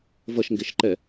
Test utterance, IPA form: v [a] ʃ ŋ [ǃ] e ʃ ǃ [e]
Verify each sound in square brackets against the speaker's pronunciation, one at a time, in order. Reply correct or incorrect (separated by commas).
incorrect, incorrect, incorrect